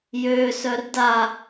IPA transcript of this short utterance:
j ø s œ r d a

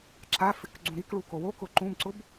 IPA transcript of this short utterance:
ǁ a f ɪ k ɡ͡ǀ ũ ɾ i k ɭ u k o w o k ʊ ǃ ũ b ǀ ʊ b

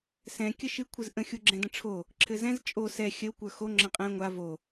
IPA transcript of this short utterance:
s ɛ̃ kʲ ə ʃ ɨ kʷʰ ɨ z ʔ ə̃ xʲ u ɡ͡ǁ ɛ̃ d ə̃ ʈ͡ʂʰ o | ǁʰ ɘ z ɛ̃ z t͡ʃʼ o s ɛ xʲ ə w kʷ ə˞ x o ŋ͡ǁ ə̃ qʼ ɛ̃ ŋʷ a v o

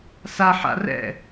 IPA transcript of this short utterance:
s a ħ a̰ r ɛ̰

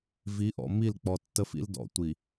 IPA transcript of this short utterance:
v i˨˦ ʔ ɔ̰˨ m i˦˨ l k͡p ɔ˨ tː ə˦ f ḭ˦ l d ɔ̰˨˦ tʷ i˨

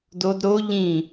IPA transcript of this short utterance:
d o d ɾ o ʎ ĩ

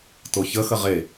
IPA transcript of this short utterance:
t o ç ə x ə ʁ e

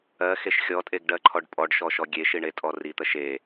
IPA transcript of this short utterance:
ɜ x e ʃ xʲ ɔ tʼ e ɡ ɖ ɜ ǃʰ ɔ ɖ pʼ ɔ ɖ ʃ ɔ ʃ ɔ ɡʲ e ʃ i ɳ e tʼ ɔ r i t̪ ɜ ʃ e

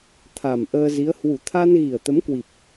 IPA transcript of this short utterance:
t̪ʰ a˨˩ m ʔ əː˧ z i˨˦ ə̯ h w u˨˩ t̪ʰ a˧ n ɣ i˨˩ ə̯ t̪ ə˨˦ m k w i˨˩ p̚

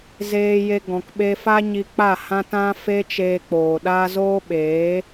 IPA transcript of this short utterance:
z eː˧ j e˧ ɡ ɔ̃˨ k ɓ e˧ f a˦ ɲ i˧ k͡p a˦˨ h ã˦ t ã˦ f e˦ t͡ʃ eː˧ k͡p oː˨ ɗ a˦ z oː˦ ɓ eː˨˦

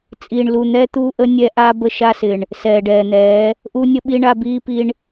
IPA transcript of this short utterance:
t͡sʼ iː˨ ɳ l u˨ n̪ ɛː˦ t̪ uː˦ ʔ ə˦ nʲ ɛ˦ ʔ a˦ b ə˦ ʃ a˦ s ɪ˨ ɳ | s ɛː˨ ɖ ɛː˨ n̪ ɛː˨˦ | ʔ u˦ nʲ ə˦ ɓ i˦ ɳ a˦ b iː˦ p i˦ ɳ

